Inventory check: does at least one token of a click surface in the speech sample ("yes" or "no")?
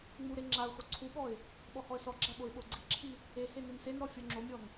yes